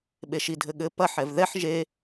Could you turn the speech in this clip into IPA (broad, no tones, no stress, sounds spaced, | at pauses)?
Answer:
ɓ e ʃ i dʱ ɘ ɠ ɘ p ɐ ħ ɛ v ð ɛ ħ ʒ e